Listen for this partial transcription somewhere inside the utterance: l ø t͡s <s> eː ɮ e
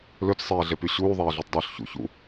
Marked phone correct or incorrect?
incorrect